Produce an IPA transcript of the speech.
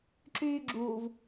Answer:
ǁ yː ɡ͡ǁ uː v

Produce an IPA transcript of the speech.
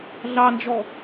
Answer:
ɮ ɑ n d͡ʒ ɔ

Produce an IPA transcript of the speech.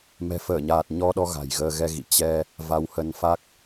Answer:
m ɛ̤˨˩ f əː˧˩ ɲ aː˨˩ t̚ ɲ ɔ˧ ɗ ɔ˧ ɣ a̤˨˩ j ɣ əː˧ ɣ ɛ˧ ɣ ḭ˧˨ t͡ɕ ɛ˧ | v a˨˦ w h ə˨˦ n f a˦˥ k̚

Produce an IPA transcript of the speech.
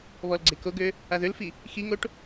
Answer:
β ɔ l ɡ͡ǀ e k o ɡ ø | a ð ø l f i | x i ŋ o ʈ

